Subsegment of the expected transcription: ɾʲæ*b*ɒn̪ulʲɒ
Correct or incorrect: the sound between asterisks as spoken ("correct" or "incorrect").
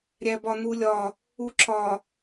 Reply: correct